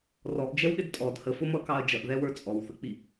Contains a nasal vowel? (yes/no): no